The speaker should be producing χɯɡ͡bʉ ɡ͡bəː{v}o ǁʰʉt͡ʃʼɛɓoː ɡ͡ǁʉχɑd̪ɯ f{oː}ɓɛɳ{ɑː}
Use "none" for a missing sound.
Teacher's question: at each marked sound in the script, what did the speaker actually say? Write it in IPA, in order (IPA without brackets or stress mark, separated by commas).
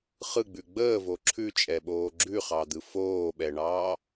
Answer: v, oː, ɑː